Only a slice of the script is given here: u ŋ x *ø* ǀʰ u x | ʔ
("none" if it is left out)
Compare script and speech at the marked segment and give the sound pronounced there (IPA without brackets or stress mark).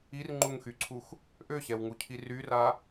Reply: y